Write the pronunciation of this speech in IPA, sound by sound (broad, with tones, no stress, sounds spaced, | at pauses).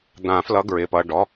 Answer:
d̪ ã˨˩˦ f l ʌ˨˦ ɡ ɹ ɪ˩˧˩ p ʌ˩˧˩ ɖ ɔ˩˧˩